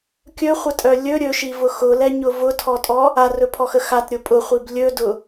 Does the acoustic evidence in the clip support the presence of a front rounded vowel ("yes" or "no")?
yes